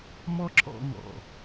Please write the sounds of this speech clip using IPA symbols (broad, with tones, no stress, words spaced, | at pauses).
mɔ˦ǁɔ̰˧ ŋɔ̰˨